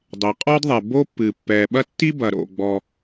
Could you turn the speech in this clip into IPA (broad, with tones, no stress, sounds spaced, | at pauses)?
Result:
dˤ e˩ qʼ ɔ˥ d ðˤ ɛ˩ b o˥ pː ɨ˩ pː ɛ˩ ɓ ɐ˥ tː i˥ b ɐ˩ ɾ o̰˩ ɡ͡b ɔ˩